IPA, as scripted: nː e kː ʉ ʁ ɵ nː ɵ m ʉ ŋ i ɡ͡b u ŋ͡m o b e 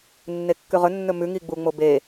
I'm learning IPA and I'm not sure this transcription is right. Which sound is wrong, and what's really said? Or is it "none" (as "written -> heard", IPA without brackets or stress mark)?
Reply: none